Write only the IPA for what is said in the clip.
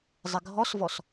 zˤ ɪ ɡʱ ɔ s v ɔ s

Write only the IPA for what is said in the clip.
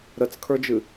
ɾ ə t͡s kʰ ə˞ d͡ʒ ɨ

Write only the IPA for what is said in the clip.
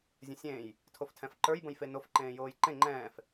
zʲ ə̃ sʲ ẽː j | tʰ o f tʰ ɛ̃ f ǃ ə˞ j b ə̃ j f e n o f ǃ ẽː j oː j ǃ ẽ ŋ͡ǃ ɛ̃ː f

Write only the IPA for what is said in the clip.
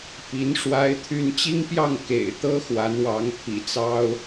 p i˧˥ n ʂ w a˥ ɪ̯ t̪ʰ y˥ n t͡ɕ i˥ ŋ p j ɑ˥˩ ŋ k ḛ˨˩ ɪ̯ t̪ ɤ˥ x w a˧˥ n w ɑ˧˥ ŋ pʰ ḭ˨˩ t͡s ɑ˥ ʊ̯

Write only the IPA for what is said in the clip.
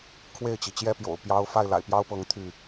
kʰ w e˥˨ ɪ̯ t͡ɕ i˩ t͡ɕ j ɛ˦ p j o̰˨˩ ʊ̯ p j ɑ˦ ʊ̯ f a˥˨ ɪ̯ l a̰˨˩ ɪ̯ p j ɑ˦ ʊ̯ p ɤ˨˦ ŋ t̪ʰ y˥˨

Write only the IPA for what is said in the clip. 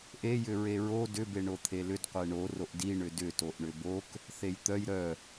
ʔ e j ʏ ɹ e ɹ o d ʏ b e ɳ o t̪ʰ e l ʏ d qʷ e ɳ o r o ʔ d i ɳ ʏ d ʏ t o ʔ ɳ ʏ b o k | θ e j t̪ œ j ɾ œ

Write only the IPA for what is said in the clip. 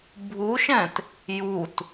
bʱ u ʃ ɛ̃ t | j u t

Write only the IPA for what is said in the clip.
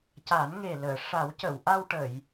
c a˨˩˦ n ŋ e˨˩ l əː˨˩˨ ʂ a˨˩˦ w c ə˨˩˨ w ʔ a˧ w ʈ ə˨˩˨ j

